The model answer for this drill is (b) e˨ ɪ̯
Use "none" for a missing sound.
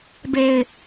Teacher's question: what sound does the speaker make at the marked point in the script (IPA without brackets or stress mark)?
b